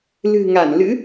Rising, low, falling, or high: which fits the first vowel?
low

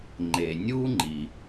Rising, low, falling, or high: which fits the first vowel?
low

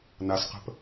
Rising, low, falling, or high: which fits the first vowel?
low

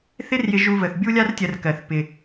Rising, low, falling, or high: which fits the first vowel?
high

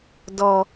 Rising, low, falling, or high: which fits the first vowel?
low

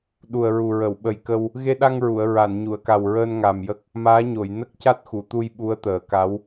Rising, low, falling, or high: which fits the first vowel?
low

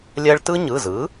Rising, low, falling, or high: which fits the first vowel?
high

